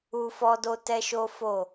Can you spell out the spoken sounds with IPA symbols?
u˦ f ɔ˦ d o˦ t ɛ˦ ʃ o˦ f o˦˨

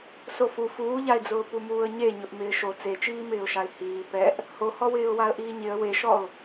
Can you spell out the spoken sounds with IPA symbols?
s o f u f uː ʎ a ɪ̯ d͡z ʊː p u m uː ə̯ ɲ e ɲ ʊ ʔ m ɪː ʃ o t͡s e t͡ʃ iː m ɪː ʊ̯ ʃ a ɪ̯ h iː p ɛ ʔ | h o h ɔ w ɪː ʊ̯ w a ə̯ ʔ iː ɲ ɪ ə̯ w e ʃ ɔ ʊ̯

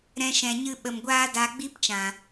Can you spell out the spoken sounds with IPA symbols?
ɾ ɛ̃˧ ʃ ɛ̃˨ ɲ ɨ˧ ɓ ə˨ m ɡʷ aː˦ d a˧ ɡ͡b i˦ p t͡ʃ ã˨

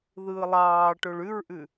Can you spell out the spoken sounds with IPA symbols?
ð ɯː lˠ ɑː ʈ o ɭ ʉ ɹ ʔ ʉ

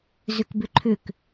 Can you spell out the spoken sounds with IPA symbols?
z ʏ k b ʏ ǃʰ ʏ k

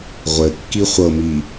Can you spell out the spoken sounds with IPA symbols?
ʁʷ ɘ kː i χʷ ɤ m i

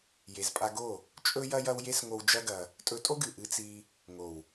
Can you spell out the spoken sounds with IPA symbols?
j e˨ z pʼ a˧ ɡ o˦˨ | t͡ʃʼ ɵ˦ j ɐ˦ j ɐ˦ w j e˦ s ŋ o˧ w d͡ʒ ɐ˦ ɡ ɐ˧ | tʼ ɵ˧ tʼ o˦ ɡ ɨ˨ ʔ ɨ˧ t͡s i˧ | ŋ o˨ w

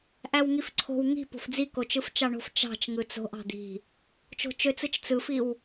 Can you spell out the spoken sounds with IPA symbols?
ʔ æ w ŋ i f ǀʰ o̤ w ŋ i̤ p o̤ f d͡z i k o t͡ʃ ɯ f t͡ʃ ɑ ɳ o̤ f t͡ʃ ɑ̤ t͡ʃ ŋ ɯ t͡s o̤ ʔ ɑ̤ d̪ i̤ | t͡ʃ o̤ t͡ʃ ø t͡s ɯ t͡ʃ t͡s ɯ f i w

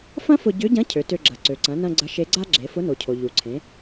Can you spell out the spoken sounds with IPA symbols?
f ɐ̃˥ f ʊ˧ ɟ ʏ˧˥ ɟ ɐ̃˧˥ cʰ ø˩˧ t ø˧ ɡ͡ǁ ɐ˩ ǀ ø˩ ǀ ɐ̃˩˧ n ɐ̃˧ ɡ͡ǀ ɐ˧˥ ʃ e˧˥ ɡ͡ǀ a˥ ɡ͡ǁ e˩˧ f ʊ˧˥ n o˩ cʰ o˩ ʎ u˩ ǀʰ ẽ˩˧

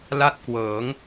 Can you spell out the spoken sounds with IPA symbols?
l a˥˩ t̚ k w ɤː˩˦ ŋ

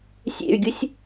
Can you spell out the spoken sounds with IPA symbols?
sʲ ḛ y̯ ɡʲ u sʲ

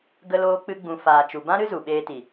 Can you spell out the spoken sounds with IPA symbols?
ɡ ə˦ l oː˦ k͡p ɨ˦ ɡ͡b ũ˧ f aː˨ t͡ʃ u˨ b ã˦ ɾ ɨ˦ z u˨ ɓ eː˧ t i˨

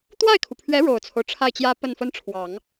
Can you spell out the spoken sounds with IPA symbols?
t̪ w a˥˩ ɪ̯ kʰ u˩ pʰ ɥ ɛ˧˥ ɻ o˨˩ ʊ̯ t͡sʰ o˦ ʊ̯ ʈ͡ʂʰ a˥˩ ɪ̯ t͡ɕ j ä˥ p ə˥˩ n f ə˥ n ʈ͡ʂʰ w ɑ˨˩˦ ŋ

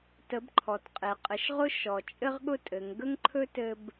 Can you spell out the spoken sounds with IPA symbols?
t ə˩˧ b ǃʰ ɔ˩ t qʼ e˩ qʼ ɘ˩˧ ʃ ʁ ʊ˥ ʃ ɔ˩ t͡ʃʼ ɘ˥ ʁ ɠ ʊ˥ tʼ ɘ˩˧ ŋ ɡ ə˥ ŋ ǃʰ ɵ˥ t ɘ˥ b

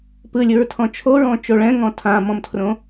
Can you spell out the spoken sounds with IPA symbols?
p ɯ lʲ ɯ ɹ tʰ ɔ̃ t͡ʃʰ o ɹ ɔ̃ t͡ʃ o ɭ ɛ̃ ŋ ɔ̃ tʰ ã m ɔ̃ m tʰ r õ

